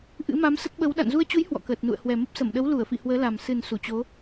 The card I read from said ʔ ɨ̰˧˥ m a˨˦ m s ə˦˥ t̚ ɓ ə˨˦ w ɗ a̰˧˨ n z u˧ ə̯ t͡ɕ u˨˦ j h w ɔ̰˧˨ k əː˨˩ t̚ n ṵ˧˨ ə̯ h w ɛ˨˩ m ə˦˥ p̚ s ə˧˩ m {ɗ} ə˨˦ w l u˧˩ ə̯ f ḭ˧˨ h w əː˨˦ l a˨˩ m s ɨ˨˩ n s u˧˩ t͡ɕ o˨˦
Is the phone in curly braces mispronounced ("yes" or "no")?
no